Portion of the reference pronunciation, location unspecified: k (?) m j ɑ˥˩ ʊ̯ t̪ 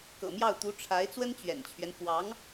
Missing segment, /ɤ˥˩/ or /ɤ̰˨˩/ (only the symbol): ɤ̰˨˩